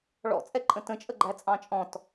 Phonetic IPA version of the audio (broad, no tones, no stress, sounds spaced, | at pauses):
ɭ ɔ̰ t͡sʼ ɛ ǃʼ ə̃ t ə̃ t͡ʃʼ ə ɡ͡ǃ æ t͡sʼ ɑ̃ t͡ʃʼ ɔ̃ t